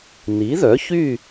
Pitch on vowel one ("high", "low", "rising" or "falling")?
rising